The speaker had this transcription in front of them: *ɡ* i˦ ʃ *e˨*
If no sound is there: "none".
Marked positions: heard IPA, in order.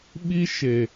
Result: ɓ, e˨

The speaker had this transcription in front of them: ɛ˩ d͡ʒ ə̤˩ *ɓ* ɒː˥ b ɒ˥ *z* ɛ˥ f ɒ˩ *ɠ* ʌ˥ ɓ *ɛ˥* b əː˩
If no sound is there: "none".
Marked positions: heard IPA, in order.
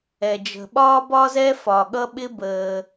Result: ɓ, z, ɠ, ɪ˥

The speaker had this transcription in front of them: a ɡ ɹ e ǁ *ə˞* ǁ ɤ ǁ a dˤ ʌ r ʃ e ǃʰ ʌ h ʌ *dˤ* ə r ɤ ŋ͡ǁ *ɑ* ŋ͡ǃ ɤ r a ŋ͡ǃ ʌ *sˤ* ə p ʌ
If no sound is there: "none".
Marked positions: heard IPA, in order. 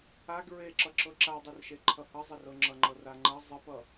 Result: ʌ, zˤ, ʌ, zˤ

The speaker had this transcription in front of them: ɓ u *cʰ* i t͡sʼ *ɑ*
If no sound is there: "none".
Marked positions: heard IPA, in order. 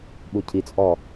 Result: cʰ, ɔ

